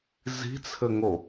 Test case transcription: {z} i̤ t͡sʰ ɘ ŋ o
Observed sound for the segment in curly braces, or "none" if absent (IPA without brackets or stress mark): z